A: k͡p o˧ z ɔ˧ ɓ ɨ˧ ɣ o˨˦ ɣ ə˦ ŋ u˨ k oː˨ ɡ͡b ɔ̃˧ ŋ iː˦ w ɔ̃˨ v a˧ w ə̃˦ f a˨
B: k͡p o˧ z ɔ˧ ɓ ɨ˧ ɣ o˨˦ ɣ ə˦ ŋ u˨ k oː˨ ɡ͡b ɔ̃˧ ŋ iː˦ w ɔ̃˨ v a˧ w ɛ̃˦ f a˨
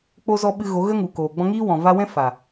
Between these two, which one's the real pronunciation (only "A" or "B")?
B